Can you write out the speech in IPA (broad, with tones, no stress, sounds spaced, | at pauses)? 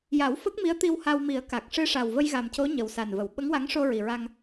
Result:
j a˨˩˦ w f ə˦˥ k̚ m i˧˥ ə̯ t̪ i˧ w h a˧ w m i˨˩˦ ə̯ k a˨˩ k̚ ʂ ɨ˧ ʂ a˨˩ w v ə˧ j ɣ a˨˩ m c o˧˥ ɲ ə˨˩ w s a˨˩ n v ə˨˩˨ w ɓ ə˧˥ ŋ w a˧˥ ŋ ʂ o˧ ɹ i˨˩ ɹ a˧ ŋ